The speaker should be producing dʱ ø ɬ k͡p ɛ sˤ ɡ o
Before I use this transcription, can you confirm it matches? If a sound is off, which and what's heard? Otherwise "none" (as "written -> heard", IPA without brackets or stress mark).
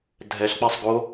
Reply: ø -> ɛ